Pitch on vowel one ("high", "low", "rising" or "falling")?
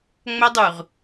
high